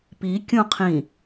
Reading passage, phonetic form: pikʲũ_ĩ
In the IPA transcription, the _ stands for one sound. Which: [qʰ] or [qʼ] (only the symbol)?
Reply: qʰ